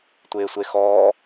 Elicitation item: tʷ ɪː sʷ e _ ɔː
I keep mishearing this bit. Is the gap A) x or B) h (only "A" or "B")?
A